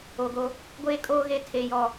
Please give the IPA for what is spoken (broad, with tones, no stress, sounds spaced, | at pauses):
o˨ ɡ o˦ | ɡʷ eː˦ kʼ oː˦ ɣ e˦ tʰ e˨ j ɔ˨